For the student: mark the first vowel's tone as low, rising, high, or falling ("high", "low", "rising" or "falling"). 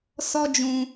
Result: high